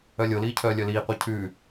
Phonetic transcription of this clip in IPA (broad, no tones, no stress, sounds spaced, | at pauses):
œ lʲ o l iː cʰ œː lʲ œ l iː qʷ e cʰ ʉː